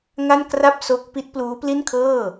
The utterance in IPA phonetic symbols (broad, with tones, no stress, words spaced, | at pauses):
ŋa˥˩nkra˥˩p̚ so˦˥k̚pi˦˥t̚ pluː˦˥pli˥˩nkʰɤː˥˩